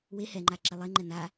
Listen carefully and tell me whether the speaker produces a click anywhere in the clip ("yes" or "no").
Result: yes